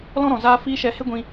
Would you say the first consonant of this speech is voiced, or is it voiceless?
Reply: voiced